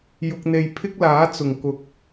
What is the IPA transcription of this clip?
j ʊ˧ k̚ n̪ e˧ j pʰ ɪ˥ k̚ l aː˨˥ t͡s ʊ˨˩ ŋ k ʊ˨ k̚

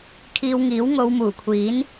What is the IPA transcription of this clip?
kʰ iː˧ w ŋ iː˨˥ w ŋ o˨˧ w m uː˨˩ kʷʰ iː˨˥ n

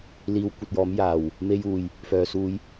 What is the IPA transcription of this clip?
l iː˧ w kʷ ɐ˧ t̚ j ɔː˨˥ m j aː˨˩ w | m e˧ j uː˨˩ j | f œː˨ s uː˧ j

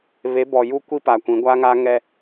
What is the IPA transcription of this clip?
β e˨˦ b ɔ˨ j u˦ kʷ i˦ p a˨ kʷ ĩ˨˦ ɡʷ a˦ ŋ a˦ ŋ ɛ˦

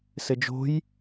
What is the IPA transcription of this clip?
s ɘ d͡ʒ o̤ j

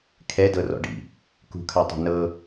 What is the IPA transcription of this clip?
kʰ ɛ d ɤ r ɔ̰ ɖ ḭ | k ṳ kʰ a tˤ a̤ n ɤ

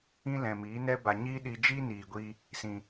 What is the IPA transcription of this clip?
ĩ˦ l ɛ̃˨ m iː˨˦ n ɛ˦ b a˨ ɲ iː˦ ɗ i˧ d͡ʒ i˦ n iː˨ ɡʷ iː˧ | s ĩ˨

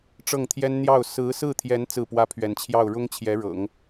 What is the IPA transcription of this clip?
ʈ͡ʂ ɤ˥˩ ŋ t̪ʰ j ɛ˥ n n̪ j ɑ˥˩ ʊ̯ s ɹ̩˧˥ s ɹ̩˥˩ t̪ʰ j ɛ˧˥ n t͡s ɹ̩˥˩ p w ä˥ pʰ ɥ ɛ˧˥ n t͡ɕʰ j ɑ˥˩ ʊ̯ ɻ ʊ˥ ŋ t͡ɕʰ j ɛ˧˥ ɻ ɤ̰˨˩˦ ŋ

